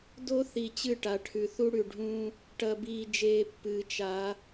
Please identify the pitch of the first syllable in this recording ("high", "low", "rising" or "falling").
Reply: high